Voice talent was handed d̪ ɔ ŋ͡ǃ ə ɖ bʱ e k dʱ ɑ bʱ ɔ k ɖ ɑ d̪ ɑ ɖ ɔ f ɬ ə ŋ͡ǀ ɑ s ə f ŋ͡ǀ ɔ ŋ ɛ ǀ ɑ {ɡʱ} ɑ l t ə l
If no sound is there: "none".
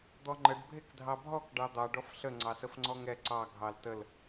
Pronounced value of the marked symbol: ɡʱ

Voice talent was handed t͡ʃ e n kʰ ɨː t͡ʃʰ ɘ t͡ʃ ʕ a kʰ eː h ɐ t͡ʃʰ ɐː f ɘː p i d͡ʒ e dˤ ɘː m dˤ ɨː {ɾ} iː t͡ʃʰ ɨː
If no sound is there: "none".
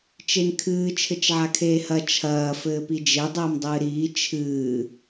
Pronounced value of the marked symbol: ɾ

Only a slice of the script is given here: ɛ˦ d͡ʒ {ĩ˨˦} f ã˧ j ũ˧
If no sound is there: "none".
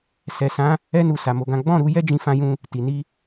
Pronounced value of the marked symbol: ĩ˧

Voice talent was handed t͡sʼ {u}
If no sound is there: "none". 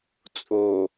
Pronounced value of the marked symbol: o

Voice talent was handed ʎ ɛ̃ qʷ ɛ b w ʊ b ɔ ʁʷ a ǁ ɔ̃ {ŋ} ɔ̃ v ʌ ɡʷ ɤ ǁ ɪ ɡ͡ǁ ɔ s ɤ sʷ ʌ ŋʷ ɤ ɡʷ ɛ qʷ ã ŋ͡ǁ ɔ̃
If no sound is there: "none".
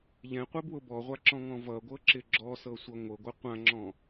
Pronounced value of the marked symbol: ŋ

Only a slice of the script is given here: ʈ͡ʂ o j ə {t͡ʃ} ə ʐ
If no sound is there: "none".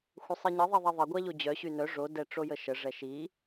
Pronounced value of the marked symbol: ʃ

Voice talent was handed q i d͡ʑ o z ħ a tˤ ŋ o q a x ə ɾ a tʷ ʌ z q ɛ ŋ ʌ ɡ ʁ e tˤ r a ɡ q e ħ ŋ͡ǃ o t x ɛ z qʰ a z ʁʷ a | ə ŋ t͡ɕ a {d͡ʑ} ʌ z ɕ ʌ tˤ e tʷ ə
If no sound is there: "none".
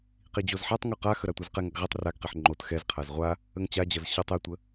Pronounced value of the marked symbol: d͡ʑ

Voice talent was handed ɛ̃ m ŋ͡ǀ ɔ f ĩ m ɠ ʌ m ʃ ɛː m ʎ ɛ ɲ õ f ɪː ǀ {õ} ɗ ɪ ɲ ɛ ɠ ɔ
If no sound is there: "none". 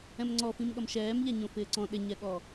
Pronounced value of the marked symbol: ɔ̃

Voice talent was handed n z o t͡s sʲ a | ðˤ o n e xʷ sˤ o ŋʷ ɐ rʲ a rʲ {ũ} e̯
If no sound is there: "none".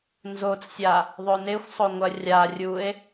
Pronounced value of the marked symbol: u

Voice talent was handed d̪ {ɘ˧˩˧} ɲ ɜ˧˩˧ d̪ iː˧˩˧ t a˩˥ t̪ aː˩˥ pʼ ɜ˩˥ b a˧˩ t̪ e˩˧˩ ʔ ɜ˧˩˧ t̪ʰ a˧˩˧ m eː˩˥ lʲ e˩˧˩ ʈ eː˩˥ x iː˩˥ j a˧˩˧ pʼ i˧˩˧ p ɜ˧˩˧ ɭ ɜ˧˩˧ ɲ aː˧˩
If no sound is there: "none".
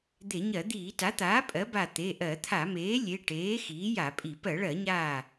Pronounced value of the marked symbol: e˧˩˧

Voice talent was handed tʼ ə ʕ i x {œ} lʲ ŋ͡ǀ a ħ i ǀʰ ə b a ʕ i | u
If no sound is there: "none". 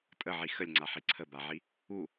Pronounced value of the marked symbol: ə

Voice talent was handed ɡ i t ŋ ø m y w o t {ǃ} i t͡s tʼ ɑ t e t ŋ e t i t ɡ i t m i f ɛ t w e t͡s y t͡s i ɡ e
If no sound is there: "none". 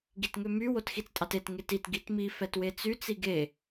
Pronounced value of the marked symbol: x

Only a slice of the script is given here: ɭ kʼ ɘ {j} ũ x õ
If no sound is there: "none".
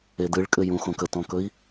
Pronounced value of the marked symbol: j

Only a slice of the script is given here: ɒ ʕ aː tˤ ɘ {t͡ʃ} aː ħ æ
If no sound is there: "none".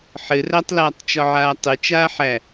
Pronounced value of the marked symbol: t͡ʃ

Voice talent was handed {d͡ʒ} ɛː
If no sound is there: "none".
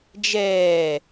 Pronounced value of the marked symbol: d͡ʒ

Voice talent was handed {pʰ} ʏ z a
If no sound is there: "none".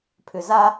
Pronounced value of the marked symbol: pʰ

